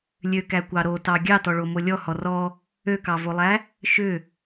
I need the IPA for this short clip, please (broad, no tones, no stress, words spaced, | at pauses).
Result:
lʲøkækʷɑ ɾotɑ ɡʲɑtɔɭomo lʲɔhɔ rɔ | økɑvolˠæ | ʃʏ